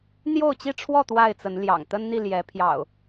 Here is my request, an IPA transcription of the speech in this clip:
n̪jo˥˨ʊ̯t͡ɕi˥˨ʈ͡ʂʰwɔ˥˨ t̪wa˥˨ɪ̯t͡sə˨˦nljɑ̰˨˩ŋ t̪ə˦nn̪i˥˨ljɛ˨˦ pʰjɑ̰˨˩ʊ̯

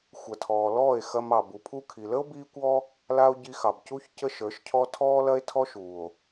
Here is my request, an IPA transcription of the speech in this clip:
xʷɐ˨tʰɔː˨lɔː˦˨e̯ xɐ˧mɑ˨ bu˨pʰu˧kʰi˨lə˦o̯ biː˦kʷɔ˦ | la˦o̯ɟi˧ xɑ˨bcu˧ç cə˦ʃə˞˨˦ʃcʰɔ˦ tʰɔː˦lɐ˦e̯ tʰɔ˦ʃuː˨o̯

